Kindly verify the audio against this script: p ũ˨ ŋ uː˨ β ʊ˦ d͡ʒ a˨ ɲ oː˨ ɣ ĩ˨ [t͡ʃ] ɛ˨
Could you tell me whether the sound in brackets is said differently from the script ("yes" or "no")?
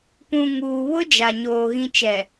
no